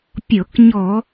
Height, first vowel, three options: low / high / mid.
mid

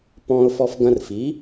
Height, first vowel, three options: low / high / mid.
mid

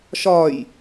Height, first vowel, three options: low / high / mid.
low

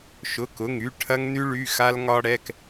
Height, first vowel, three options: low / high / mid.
high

